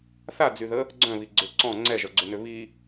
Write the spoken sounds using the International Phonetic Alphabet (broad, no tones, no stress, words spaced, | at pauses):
θad͡zyðə | ɡ͡ǀœ̃βi ɡ͡ǀøǀɔ̃ ŋ͡ǀɛʒœɡ͡ǀønø βi